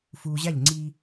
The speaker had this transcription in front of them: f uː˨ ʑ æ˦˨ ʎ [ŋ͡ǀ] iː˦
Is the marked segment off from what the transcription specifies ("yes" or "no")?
no